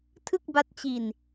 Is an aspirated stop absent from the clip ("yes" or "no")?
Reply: no